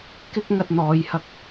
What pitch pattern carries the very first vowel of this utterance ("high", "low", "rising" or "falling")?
high